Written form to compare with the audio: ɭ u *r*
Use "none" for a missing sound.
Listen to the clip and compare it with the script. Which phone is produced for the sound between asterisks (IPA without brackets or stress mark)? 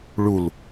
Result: l